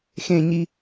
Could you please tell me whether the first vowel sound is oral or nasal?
nasal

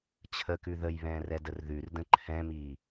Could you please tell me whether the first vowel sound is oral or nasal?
oral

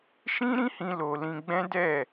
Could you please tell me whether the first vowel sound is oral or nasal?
nasal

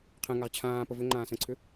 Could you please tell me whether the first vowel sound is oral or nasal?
nasal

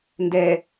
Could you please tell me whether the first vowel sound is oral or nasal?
oral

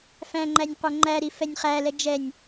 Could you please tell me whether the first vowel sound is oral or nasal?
nasal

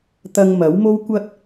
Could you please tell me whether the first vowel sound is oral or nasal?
oral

